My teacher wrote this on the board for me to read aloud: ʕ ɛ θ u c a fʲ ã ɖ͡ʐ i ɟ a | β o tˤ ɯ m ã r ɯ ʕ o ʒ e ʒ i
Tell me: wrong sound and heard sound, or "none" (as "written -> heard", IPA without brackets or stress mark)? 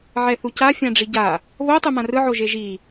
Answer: none